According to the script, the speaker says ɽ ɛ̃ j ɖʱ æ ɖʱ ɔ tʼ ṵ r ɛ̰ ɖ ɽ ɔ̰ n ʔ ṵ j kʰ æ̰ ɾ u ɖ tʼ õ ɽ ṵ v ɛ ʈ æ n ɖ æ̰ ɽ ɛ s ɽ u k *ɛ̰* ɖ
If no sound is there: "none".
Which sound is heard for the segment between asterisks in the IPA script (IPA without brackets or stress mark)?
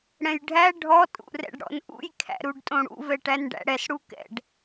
ɛ̰